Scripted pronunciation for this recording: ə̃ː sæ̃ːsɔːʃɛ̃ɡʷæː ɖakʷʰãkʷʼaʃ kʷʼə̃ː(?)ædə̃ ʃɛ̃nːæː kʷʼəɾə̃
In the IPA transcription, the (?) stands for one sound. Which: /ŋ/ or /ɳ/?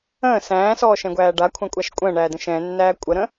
ɳ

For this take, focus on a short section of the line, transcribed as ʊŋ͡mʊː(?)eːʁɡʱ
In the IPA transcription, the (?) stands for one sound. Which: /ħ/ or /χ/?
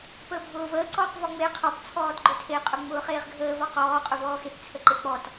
χ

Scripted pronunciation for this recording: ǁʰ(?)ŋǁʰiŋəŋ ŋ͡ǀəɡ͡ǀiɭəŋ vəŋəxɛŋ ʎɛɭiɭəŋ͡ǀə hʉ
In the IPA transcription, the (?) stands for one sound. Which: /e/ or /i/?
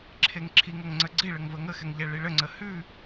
e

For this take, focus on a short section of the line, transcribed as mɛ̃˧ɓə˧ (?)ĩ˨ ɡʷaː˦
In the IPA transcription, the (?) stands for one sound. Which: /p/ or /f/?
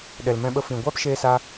f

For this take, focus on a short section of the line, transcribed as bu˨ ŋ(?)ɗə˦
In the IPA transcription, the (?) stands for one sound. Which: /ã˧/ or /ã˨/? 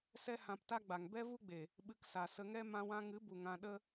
ã˧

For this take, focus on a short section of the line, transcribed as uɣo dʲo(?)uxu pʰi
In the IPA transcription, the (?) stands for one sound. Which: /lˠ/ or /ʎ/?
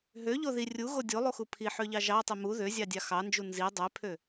lˠ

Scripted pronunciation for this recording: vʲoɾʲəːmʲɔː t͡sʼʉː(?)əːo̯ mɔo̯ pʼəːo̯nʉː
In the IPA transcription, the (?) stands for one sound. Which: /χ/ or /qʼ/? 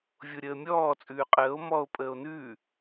qʼ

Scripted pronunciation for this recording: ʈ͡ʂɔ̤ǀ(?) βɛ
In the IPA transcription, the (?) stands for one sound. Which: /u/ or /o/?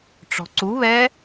u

